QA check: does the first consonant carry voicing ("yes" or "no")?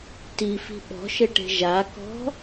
no